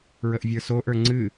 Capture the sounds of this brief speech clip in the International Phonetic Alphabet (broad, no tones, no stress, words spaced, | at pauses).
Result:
ɹəʔvʲə˞soʔə˞ ŋ͡ǀɨ